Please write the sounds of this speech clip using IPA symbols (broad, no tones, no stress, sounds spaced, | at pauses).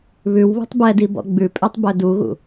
β ʉ w β ṳ tˤ b ɛ d i b ɔ̰ ɡ͡b ʉ pʼ ø tˤ b œ d u ɣ ṵ